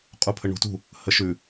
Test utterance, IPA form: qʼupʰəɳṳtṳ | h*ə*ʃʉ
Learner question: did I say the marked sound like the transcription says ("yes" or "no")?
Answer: yes